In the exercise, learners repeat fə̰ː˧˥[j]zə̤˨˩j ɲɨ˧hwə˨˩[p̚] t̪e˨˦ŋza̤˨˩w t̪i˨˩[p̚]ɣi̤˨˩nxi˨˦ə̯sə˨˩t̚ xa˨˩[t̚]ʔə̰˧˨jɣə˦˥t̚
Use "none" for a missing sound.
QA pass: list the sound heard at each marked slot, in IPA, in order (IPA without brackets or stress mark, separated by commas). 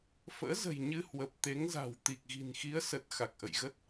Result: none, p̚, k̚, k̚